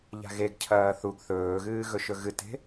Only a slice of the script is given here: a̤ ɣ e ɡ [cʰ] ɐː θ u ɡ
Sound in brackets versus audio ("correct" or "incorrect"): correct